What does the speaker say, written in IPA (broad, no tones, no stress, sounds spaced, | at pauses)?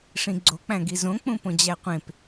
ʂ ĩ ɡ͡ǀ o k͡p æ̃ ɡ i z õ k͡p ũ p õ d͡ʑ æ qʷ ẽ p